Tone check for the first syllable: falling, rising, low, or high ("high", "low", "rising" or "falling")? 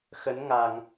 rising